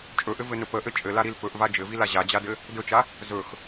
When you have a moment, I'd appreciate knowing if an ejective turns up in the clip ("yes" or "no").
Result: yes